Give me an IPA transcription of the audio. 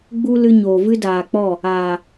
ɡ͡b u˦ l ɨ˧ ɲ oː˨ v ɨ˦ d aː˨ k͡p ɔ˦˨ | aː˨

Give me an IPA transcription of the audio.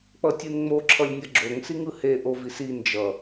k͡p ʌ tʲ ɯ n ŋ͡m o ǁʰ ʌ lʲ nʲ ʌ ɡ͡ǁ o ŋ s i ŋ ɯ h e ʔ o v i s i n d͡ʒ ʌ

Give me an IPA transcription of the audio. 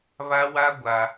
β a˦ w a˦ ɡʷ a˦

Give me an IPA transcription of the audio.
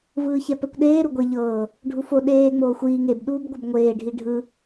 v ɯː ç ɛ p ɛ kʷ ɗ eː ɾ u ɡʷ e ʎ ɤː | ɖʱ u f o ɗ eː ŋ͡m oː xʷ iː ŋ e b ɗ uː b ɡʷ ɯ b ŋʷ eː ɖʱ i ɖʱ ɯ

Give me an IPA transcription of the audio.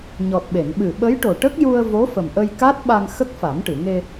ɲ ɔ˨˩ t̚ ɓ e˨˩˨ n ɓ ɨ˨˩ ɓ ə˧˥ j ʈ o˨˩ ʈ ə˦˥ k̚ j u˧ ə̯ v o˧˥ f ə˨˩ m ʔ ə˧ j k a˦˥ t̚ ɓ a˧ ŋ x ə˦˥ k̚ f a˨˩˦ m ʈ ɨ˨˩˨ ŋ e˧

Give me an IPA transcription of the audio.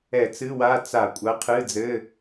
ɛ˧˩˧ t͡s ɨ˧˥˧ w a˧˥˧ t͡s a˧˩˧ kʷʼ ɐ˨˥ qʰ ɨ˧˥˧ d͡z ɘ˧˥˧

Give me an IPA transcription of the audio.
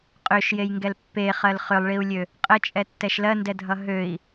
qʼ ø ʃ j e j ŋ ɡ ɛ l pː e χ ɜ l χ ʏ lˠ ɭ i u̯ lʲ ø | qʼ ə t͡ʃʼ ɛ tː ɛ ʃ l ɜ n d ɛ dʱ ʌ ɦ ø i̯

